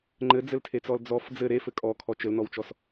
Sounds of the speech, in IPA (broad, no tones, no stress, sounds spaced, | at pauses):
ŋ͡ǃ ɘ d͡z ɘ l tʰ e t͡s ɔ l d͡z ɔ f d͡z ɘ ɾ e f ɘ kʼ ɔ kʰ ɔ t͡ʃ ɘ l n ɔ w t͡ʃ ɔ s